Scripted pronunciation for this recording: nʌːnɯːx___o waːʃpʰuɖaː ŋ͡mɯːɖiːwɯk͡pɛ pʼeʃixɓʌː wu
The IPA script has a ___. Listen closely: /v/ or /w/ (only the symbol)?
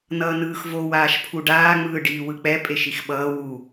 v